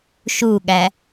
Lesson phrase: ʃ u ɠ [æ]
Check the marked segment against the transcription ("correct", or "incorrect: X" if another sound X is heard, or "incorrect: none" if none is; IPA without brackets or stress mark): correct